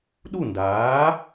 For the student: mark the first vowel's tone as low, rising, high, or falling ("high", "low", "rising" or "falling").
falling